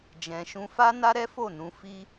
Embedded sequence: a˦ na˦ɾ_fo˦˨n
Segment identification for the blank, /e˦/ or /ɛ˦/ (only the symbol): ɛ˦